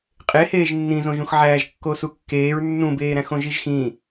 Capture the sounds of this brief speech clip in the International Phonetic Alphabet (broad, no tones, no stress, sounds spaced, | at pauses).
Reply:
qʼ e h eː ʒ nː ĩ z õ ʒ ũ x ʕ æː ʒ kː o s u kː eː ɹ nː ũ b eː ɾ æ̃ x õ ʒ i ʒ x ĩ